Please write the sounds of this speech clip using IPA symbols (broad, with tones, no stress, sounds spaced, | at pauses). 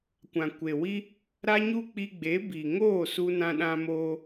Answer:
kʷ ã˨ kʷ e˨ w i˦ | ɾ a˦ ɲ u˦ k͡p i˧ ɡ͡b e˨˦ b i˨ ŋ oː˦˨ s u˧ n ã˧ ɗ ã˧ m oː˧